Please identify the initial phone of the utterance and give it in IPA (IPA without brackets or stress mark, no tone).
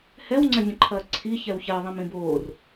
h